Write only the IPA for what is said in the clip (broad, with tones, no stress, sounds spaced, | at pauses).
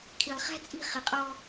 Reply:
kʰ i˨ lˠ χ æ̤˦ t͡sʼ i̤˦˨ χ ɪ˨ qʼ ɔ˦